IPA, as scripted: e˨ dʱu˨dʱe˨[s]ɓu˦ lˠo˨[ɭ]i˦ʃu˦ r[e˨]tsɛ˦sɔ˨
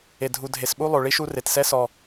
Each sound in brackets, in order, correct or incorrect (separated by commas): correct, correct, correct